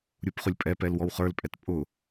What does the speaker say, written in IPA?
ɾʲupχʊlʲpʼɛpɛl wɔwχə˞lpʼɛt pʼʊ

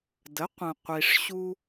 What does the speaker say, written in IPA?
də˩˥ qʷə̃˩ qʷi˩ʂɕu˧

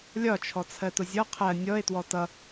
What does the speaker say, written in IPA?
lʲɒt͡ʃʰɔ t͡sʰɜtʊzʲɔ qʰɜ nʲɔe̯twɔ tʌ

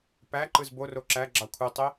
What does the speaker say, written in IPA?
pæǃɯz boro ǁæ ɡ͡ǁɑkʷʰitˤi

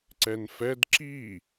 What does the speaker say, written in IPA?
ǀɛnfɛd ǁi

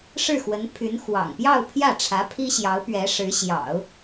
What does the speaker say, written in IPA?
ʂɻ̩˥˩xwə˧˥npʰy˧˥n xwɑ̰˨˩ŋ pjɑ˥˧ʊ̯pʰjä˥˩ʈ͡ʂʰä˧˥ pʰi˥ɕjɑ˧˥ʊ̯ pɥɛ˧˥ʂɻ̩˧˥ɕjɑ̰˨˩˦ʊ̯

